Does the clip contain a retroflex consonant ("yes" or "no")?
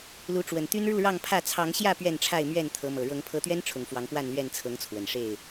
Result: yes